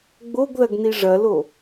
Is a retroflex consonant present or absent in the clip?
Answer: present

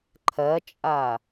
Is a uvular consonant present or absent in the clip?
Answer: absent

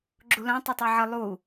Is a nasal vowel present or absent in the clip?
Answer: present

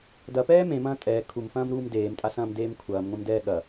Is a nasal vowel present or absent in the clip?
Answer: present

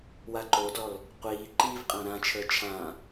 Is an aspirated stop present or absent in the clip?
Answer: present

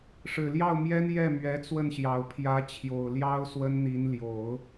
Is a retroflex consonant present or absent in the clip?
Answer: present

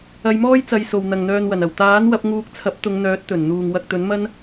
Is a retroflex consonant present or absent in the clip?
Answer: absent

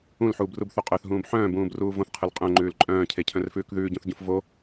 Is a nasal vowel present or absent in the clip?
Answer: present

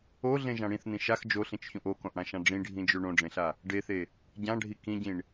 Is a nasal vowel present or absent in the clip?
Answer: present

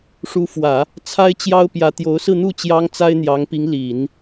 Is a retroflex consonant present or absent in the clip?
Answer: present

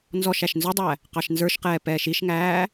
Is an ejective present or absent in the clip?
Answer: absent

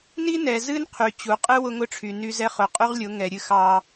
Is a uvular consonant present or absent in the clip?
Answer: present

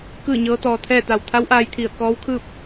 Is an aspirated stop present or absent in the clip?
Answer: present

